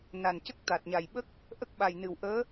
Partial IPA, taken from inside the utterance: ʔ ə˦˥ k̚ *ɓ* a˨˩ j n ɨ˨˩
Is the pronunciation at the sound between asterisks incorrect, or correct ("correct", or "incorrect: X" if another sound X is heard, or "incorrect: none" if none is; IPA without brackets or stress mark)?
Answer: correct